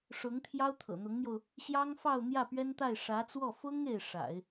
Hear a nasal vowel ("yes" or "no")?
no